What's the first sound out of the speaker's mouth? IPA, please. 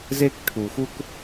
z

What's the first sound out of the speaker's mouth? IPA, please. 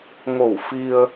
ŋ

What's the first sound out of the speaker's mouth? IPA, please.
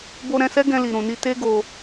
b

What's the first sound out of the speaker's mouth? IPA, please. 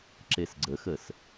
ǁ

